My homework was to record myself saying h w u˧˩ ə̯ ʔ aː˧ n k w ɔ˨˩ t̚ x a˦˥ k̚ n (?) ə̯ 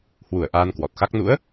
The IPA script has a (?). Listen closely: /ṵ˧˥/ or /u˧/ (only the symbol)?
ṵ˧˥